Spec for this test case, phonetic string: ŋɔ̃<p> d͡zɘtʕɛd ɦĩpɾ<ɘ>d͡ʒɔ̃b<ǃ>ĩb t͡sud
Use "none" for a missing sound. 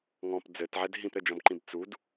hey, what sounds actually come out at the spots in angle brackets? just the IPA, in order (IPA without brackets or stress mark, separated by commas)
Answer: p, ɘ, ǃ